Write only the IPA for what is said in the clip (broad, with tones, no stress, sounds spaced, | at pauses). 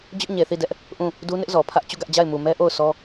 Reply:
d͡ʑ ʊ˦ ʔ ɲ e˨ θ i˦˨ d ɛ˦ ʔ | ʔ ũ˦˨ | d u˦ n ɪ˦ ʔ z ɔ˨ pʰ ä˦ ʔ t͡ɕ u˦˨ ɡ ä˦ ʔ d͡ʑ a˦˨ ɪ̯ m u˨ m ɛ˦ ʔ o˦˨ ʊ̯ sʰ ɔ˦